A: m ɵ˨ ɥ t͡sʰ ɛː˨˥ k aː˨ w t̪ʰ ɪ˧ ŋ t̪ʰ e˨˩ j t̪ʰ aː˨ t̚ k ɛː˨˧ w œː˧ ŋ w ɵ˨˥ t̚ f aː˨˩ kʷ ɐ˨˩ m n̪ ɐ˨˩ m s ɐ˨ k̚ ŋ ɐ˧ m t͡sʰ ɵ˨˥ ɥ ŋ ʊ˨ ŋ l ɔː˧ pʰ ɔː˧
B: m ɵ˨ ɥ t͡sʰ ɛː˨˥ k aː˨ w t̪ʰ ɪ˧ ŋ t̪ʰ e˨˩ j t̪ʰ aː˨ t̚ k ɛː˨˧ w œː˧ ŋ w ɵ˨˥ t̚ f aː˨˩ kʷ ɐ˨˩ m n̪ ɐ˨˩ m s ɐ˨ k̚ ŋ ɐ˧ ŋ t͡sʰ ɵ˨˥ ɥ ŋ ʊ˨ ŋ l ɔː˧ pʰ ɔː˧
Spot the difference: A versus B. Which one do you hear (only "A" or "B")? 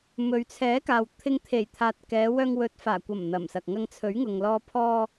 B